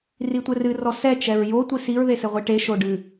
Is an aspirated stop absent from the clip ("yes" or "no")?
yes